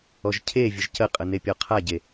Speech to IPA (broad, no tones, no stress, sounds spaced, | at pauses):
ɔ ʒ cʰ e vʲ ə ʒ c ə qʼ ə n e pʲ ɔ qʰ a ɟ e